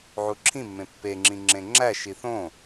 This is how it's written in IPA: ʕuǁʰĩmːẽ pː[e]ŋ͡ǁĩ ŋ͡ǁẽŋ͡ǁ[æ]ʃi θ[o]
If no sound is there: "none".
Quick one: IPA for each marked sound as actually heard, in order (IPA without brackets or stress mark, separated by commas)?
e, æ, õ